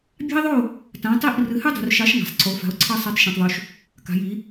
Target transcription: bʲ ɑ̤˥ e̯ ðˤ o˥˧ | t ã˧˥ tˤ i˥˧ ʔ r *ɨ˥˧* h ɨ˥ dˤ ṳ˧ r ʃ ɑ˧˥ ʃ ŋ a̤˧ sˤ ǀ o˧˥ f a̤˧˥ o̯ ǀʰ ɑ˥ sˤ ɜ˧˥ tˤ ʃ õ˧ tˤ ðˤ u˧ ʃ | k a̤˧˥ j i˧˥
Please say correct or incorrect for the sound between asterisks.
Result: incorrect